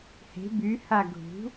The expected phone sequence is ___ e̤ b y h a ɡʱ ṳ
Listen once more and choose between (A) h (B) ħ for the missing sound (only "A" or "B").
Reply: A